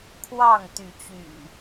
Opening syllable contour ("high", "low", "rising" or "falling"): falling